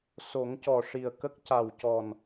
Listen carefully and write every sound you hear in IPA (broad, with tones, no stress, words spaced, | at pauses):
so˨˩˦ŋcɔ˨˩ʂi˨˩ə̯ kə˦˥k̚ca˨˩wcɔ˨˩n